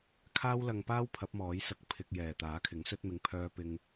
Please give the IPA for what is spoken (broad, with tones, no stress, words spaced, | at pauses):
kʰaː˥wlɐ˧ŋpaː˥w pʰɐ˨˥p̚mɔː˨˥jsɐ˧k̚ pʰɪ˧k̚jɛː˨t̪aː˨˥kʰɪ˨˥ŋ sɵ˧t̚mɪ˨˧ŋpʰœː˧ pɪ˧ŋ